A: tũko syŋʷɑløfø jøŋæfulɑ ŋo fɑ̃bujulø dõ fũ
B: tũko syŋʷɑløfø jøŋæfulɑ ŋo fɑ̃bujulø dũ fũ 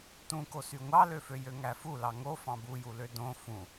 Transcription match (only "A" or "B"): A